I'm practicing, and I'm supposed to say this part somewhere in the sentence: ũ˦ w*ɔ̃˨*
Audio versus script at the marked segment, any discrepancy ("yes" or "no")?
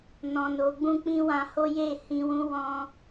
yes